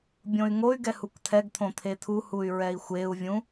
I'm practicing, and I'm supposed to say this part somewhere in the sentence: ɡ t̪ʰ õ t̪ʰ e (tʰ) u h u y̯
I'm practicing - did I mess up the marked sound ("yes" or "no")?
no